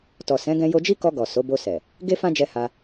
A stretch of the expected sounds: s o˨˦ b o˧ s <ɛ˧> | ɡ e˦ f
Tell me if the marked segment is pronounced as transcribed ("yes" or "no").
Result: no